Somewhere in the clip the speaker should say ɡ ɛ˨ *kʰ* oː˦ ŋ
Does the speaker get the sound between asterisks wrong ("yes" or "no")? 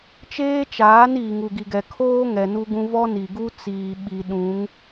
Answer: no